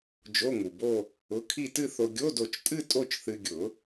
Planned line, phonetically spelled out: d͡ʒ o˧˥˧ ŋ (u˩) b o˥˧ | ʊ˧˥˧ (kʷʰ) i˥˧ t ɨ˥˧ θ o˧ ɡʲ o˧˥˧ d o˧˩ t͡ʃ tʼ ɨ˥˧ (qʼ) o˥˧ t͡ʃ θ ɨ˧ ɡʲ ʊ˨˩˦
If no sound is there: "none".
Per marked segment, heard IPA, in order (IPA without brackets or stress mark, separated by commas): u˩, kʰ, tʼ